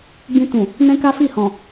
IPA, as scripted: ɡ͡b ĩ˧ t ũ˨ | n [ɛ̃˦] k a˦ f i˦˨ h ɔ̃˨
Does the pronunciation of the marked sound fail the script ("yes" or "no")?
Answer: no